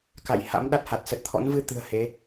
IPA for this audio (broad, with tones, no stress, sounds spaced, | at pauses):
k a̰˧˨ j h a̰˧˥ m ɗ a˦˥ t̚ h a˨˩ t̚ s ə˨˩ t̚ t̪ʰ ɔ̰˧˥ n v ɨ˧ t̪ ɨ̤˨˩ ə̯ h e˨˦